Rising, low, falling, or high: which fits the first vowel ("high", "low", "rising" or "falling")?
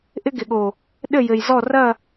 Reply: high